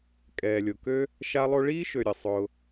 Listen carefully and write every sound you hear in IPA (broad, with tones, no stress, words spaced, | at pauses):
kʼɛː˨lʲo˨kø˥ | ʃa˦lˠo˦ɭiː˥ʃø˨ ɾʲə˨ sˤʊː˨